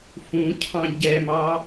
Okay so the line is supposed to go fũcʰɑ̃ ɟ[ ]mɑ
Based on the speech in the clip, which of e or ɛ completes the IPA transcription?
ɛ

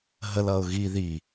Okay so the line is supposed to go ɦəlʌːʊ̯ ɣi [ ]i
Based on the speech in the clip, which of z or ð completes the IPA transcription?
ð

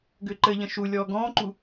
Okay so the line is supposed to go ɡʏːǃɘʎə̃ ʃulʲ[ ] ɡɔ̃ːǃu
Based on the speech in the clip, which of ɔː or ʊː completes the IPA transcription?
ɔː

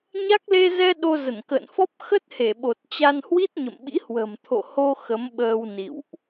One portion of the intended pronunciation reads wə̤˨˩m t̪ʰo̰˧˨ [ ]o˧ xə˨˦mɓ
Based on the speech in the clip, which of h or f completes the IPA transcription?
h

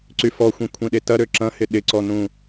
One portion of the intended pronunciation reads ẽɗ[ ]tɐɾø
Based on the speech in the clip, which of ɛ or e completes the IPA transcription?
e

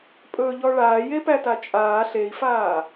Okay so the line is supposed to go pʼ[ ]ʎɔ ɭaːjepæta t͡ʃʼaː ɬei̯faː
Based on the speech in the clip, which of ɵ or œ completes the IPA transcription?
ɵ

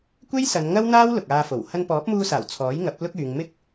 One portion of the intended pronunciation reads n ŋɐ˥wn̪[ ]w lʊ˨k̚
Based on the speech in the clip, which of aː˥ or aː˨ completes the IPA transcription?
aː˥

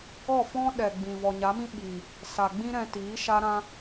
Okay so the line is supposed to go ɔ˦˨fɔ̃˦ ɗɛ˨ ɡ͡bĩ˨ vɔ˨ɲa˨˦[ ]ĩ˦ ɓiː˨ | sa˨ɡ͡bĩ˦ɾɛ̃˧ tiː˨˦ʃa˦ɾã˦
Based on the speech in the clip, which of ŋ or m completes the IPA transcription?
m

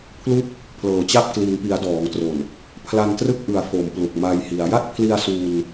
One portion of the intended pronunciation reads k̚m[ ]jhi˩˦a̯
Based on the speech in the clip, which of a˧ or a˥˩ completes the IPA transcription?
a˧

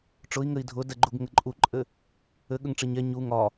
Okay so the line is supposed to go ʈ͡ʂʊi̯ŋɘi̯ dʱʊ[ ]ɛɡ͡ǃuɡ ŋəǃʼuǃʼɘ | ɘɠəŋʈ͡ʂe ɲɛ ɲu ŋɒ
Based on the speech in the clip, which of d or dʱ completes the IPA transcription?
d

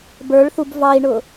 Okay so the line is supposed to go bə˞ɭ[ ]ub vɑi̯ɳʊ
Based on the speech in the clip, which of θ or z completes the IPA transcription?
θ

